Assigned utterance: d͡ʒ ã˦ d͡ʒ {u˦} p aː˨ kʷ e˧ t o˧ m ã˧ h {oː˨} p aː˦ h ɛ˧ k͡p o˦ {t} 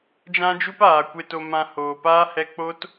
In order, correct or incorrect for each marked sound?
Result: correct, correct, correct

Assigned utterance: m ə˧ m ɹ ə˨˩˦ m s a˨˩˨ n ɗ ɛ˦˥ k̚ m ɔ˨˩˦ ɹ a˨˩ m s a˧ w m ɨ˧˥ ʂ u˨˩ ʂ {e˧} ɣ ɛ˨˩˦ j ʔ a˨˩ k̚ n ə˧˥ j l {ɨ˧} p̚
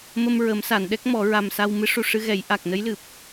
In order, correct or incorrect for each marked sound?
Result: incorrect, incorrect

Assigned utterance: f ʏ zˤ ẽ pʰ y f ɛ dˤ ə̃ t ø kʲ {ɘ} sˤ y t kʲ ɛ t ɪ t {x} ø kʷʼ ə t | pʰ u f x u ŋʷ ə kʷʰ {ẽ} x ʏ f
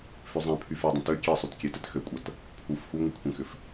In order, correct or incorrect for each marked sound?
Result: incorrect, correct, correct

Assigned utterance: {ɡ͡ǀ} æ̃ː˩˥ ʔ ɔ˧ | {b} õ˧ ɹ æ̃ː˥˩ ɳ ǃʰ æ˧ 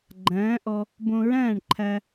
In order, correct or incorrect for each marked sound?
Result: incorrect, correct

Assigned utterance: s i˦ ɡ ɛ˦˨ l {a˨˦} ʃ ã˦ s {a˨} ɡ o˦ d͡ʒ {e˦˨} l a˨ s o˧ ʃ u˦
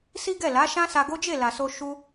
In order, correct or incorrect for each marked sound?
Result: correct, incorrect, correct

